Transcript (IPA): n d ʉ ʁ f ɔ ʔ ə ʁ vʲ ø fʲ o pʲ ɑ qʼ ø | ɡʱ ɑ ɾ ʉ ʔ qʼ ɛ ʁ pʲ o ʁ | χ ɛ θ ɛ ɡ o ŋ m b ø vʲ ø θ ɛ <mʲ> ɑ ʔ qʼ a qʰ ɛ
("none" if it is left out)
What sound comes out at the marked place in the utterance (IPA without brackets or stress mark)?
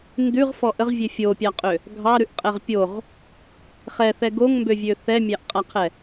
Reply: mʲ